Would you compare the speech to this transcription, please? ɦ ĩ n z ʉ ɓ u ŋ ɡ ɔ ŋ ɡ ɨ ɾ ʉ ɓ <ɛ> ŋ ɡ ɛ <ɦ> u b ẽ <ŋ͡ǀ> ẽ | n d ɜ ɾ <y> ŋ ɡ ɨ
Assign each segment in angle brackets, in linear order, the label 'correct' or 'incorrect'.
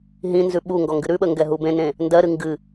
incorrect: ə, correct, incorrect: n, incorrect: ɨ

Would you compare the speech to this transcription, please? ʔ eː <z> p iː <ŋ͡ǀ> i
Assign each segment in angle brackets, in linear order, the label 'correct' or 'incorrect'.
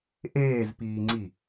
correct, correct

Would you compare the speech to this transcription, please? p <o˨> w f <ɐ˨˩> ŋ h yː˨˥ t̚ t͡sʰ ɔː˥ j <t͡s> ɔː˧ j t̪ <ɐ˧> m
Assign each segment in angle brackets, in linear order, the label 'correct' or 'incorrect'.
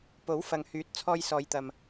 incorrect: o˨˥, incorrect: ɐ˨, incorrect: s, correct

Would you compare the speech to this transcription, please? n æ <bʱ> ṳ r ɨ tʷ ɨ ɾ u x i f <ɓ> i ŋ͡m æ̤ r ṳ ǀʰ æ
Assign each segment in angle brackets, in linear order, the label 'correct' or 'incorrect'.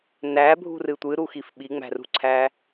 correct, correct

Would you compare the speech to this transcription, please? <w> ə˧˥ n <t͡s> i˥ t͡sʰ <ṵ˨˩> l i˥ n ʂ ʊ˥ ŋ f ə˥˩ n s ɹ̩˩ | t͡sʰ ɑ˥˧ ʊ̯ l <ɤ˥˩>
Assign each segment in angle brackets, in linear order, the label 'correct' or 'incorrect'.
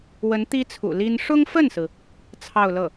correct, incorrect: t̪, correct, correct

